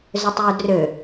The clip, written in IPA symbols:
zøtˤjudrø

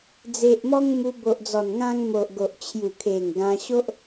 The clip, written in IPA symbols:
d͡ze˨ʔmɔ˧ŋ mu˧bo˨ʔd͡zɔ˨˩nŋã˧ŋ mo˨ʔɡo˨ʔ t͡ɕʰju˨˩kʰe˨˩ŋ ɡã˧ɕo˦ʔ

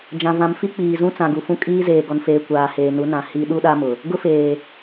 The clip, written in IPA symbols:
d͡ʒã˨vã˨mfi˦ k͡piː˨zũ˦ t͡sã˨ɡu˨fũ˦ kʼiː˦zeː˨ ɡɔ˨nfeː˨ kʷaː˨heː˨nu˨˦nã˨ hi˦ ɗu˦ɗa˦mʊ˨ | ɡʊ˦feː˨

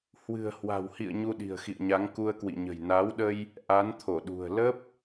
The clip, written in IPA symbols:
hwɨ̤˨˩ə̯hwa̤˨˩whḭ˧˨ə̯ ɲu˧ɗi̤˨˩ə̯xḭ˧˨ə̯ɲa˨˦ŋ ku˧ə̯kwḭ˧˨ɲə̤˨˩j naː˨˦wɗə˧j | ʔa˨˦nt̪ʰo˧˩ɗṳ˨˩ə̯ lə˦˥p̚

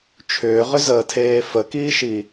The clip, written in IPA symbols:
t͡ʃʰʏːʁʏzəːtʰeː fəkiːʃi

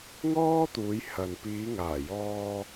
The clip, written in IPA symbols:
ŋɔː˥t̪uː˨˧jhɐ˨n piː˨˧ŋaː˨˩jɔː˧

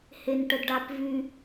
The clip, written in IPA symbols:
henʈədɖapvy

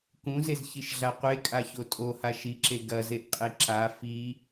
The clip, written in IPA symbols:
kũzezçiʃɮa qʷekʼaço tʼoha ʃiǁe ɡɐzeʔqʼe ǁa fi

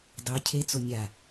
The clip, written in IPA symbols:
dˤy cʰe t͡sonʲa

